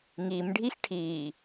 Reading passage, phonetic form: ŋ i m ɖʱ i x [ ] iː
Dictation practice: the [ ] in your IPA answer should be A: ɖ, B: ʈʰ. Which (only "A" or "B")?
B